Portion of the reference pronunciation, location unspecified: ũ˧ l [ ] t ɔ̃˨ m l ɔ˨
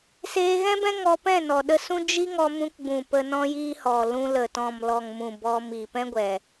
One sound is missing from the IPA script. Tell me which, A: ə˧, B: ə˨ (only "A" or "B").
B